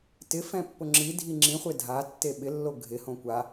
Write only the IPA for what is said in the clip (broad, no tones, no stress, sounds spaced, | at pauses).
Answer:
t ɪ f ɛ̃ pː ʊ ŋ͡ǁ i dʱ i ŋ͡ǁ ĩ χʷ e dʱ a tː e ɓ ɪ lː o ɡʱ ɪ h õ kʷ a